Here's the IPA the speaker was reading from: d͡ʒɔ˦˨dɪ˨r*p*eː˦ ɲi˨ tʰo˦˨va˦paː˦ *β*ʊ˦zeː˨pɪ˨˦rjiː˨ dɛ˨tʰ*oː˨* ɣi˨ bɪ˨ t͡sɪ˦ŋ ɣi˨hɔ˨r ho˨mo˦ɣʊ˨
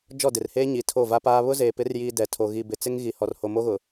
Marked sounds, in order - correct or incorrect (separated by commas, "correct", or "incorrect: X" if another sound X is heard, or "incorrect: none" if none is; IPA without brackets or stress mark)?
incorrect: h, correct, incorrect: o˨